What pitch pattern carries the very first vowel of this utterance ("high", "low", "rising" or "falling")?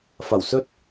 low